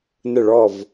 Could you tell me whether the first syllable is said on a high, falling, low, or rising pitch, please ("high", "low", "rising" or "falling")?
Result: falling